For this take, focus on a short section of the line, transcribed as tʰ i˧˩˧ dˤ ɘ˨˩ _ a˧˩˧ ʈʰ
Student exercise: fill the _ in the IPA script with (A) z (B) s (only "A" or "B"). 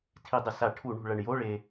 B